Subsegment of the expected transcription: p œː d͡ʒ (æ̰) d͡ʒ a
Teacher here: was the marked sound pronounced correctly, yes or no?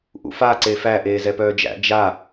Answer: yes